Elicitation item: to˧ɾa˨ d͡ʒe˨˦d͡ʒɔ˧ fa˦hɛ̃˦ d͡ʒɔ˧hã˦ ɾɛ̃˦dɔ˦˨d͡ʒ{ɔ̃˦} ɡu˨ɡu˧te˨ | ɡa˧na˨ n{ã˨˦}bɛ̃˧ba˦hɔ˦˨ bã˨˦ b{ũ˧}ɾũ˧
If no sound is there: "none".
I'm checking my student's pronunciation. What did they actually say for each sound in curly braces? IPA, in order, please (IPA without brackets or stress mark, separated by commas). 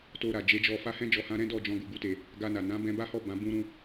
ɔ̃˧, ã˨˦, ũ˧